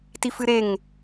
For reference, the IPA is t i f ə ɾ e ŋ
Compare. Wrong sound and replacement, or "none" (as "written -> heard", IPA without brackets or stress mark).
ə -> ɨ